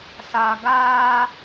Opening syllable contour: low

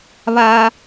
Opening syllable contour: low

